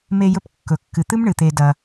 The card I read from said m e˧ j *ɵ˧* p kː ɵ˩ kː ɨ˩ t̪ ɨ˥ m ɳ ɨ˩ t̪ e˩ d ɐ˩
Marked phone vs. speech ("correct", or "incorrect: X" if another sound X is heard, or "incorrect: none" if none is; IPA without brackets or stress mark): correct